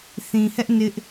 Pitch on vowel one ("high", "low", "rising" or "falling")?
low